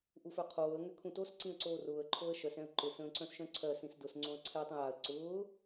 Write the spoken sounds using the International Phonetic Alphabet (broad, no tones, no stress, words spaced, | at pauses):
ʔufœqʰoːə̯ ŋʏkʰũtos ǀĩə̯ǀoːrʊːə̯ ǃʰoə̯ʃœs ɛ̃ə̯ǃʊ sə̃ːǀœ̃sʃœ̃ǀʰɜ sĩsdʊs ŋ͡ǀõə̯ǀʰɛ tˤə̃jaə̯ ǀʊː